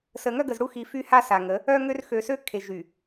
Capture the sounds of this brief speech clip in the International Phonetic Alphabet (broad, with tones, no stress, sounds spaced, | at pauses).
s ə˨ ŋ œ˦ ɡ ə˨ z ɽ u˦ x i˨ f y˦ h a˦ s a˨ ŋ ə˨˦ | œ˦ ŋ ø˦ r x ø˨ s ø˦ kʰ e˨ ʒ y˨